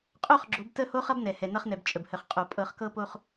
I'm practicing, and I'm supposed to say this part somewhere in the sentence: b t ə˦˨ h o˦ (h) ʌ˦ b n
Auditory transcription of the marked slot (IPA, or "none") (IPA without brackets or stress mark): χ